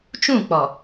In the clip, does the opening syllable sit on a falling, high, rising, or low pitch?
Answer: falling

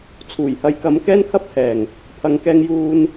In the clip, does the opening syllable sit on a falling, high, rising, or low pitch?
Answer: low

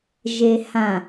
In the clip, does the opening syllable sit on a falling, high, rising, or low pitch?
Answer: low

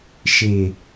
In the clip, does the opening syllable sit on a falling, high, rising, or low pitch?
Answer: low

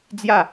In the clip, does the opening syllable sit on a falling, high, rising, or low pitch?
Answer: falling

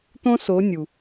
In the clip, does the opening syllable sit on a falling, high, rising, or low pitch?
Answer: high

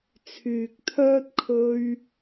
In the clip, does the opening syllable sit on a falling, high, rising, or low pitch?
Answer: low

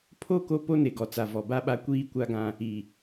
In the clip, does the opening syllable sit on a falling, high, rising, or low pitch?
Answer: falling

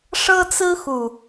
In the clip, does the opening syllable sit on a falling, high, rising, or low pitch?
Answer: high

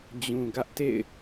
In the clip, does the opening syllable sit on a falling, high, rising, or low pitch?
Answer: low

